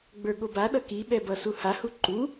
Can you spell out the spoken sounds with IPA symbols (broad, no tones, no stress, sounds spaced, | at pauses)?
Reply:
ɡ͡b ə˞ ɠ o b a ɗ ʌ k i ɓ ɛ b ʌ s u h a h u ǃ u